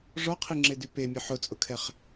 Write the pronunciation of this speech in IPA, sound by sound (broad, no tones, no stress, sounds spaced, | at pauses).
ʐ ɔ qʰ i ŋ͡ǁ e d y p e mʲ ʊ ħ ʊ t͡sʼ ʊ kʰ ɛ χ